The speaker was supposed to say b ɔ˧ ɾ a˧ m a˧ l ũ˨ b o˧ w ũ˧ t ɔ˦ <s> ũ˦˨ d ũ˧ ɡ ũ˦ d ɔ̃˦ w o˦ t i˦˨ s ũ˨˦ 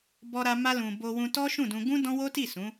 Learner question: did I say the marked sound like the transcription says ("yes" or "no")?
no